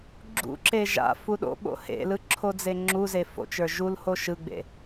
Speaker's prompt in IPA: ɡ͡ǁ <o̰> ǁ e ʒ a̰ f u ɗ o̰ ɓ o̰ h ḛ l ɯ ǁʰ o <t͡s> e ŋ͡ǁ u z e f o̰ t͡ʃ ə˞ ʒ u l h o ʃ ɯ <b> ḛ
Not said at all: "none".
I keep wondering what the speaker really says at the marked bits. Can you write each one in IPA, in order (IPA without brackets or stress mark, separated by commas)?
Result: ṵ, d͡z, ɡ͡b